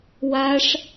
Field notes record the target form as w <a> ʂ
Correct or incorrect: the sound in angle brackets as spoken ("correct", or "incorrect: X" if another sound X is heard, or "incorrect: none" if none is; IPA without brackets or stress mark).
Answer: correct